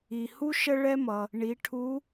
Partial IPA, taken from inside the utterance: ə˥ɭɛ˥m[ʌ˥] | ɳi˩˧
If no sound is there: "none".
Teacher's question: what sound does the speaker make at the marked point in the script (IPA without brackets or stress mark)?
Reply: ʌ˩